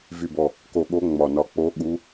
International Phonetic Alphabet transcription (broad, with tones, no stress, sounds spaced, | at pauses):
v y˨˩ b ɔ˨˩ | k o˨˩ ɠ o˨˦ ŋ͡m ɒ˨˩ n ɒ˨˩ k͡p o˨˦ ɠ u˨˦